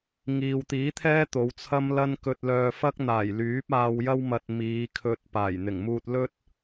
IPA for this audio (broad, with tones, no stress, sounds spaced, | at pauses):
ŋ iː˨ w t̪ iː˨˥ t̪ʰ ɛː˥ t̪ o˨˧ w t͡sʰ ɐ˥ m l ɐ˥ n k ɵ˧ t̚ l œː˧ f ɐ˥ k̚ n̪ aː˨˩ j l yː˨˥ p̚ aː˧ w j ɐ˥ w m ɐ˧ t̚ m iː˨˧ kʰ ɵ˧ t̚ p aː˨˩ j n̪ ɪ˨˩ ŋ m uː˧ t̚ l ɵ˥ t̚